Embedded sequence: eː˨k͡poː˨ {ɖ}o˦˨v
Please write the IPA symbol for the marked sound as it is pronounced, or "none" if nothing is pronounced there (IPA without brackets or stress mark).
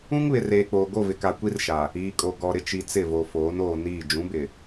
ɡ